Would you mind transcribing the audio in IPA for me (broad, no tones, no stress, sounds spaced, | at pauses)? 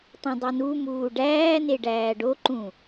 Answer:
tˤ õ dˤ i n u m uː ɖ æː n e ɖ æː ɖ o ǃ ũ